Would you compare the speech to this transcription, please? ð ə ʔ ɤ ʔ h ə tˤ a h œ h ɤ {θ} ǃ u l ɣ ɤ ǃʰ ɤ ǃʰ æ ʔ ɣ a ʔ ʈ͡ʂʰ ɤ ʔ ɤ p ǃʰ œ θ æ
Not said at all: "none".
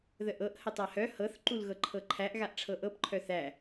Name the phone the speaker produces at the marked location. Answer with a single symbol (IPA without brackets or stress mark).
θ